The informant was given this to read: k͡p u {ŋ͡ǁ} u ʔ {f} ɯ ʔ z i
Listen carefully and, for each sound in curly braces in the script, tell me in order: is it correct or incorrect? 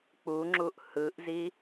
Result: correct, incorrect: h

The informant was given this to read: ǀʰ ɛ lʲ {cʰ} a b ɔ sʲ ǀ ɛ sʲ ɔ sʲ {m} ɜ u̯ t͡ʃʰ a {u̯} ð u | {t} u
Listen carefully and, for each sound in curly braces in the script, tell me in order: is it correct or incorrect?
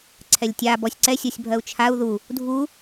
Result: incorrect: tʲ, incorrect: bʱ, correct, incorrect: dʱ

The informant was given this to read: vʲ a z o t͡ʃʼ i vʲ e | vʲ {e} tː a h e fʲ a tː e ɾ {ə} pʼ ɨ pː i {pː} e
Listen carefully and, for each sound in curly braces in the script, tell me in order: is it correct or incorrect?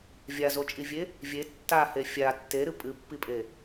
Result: correct, incorrect: ɨ, incorrect: pʼ

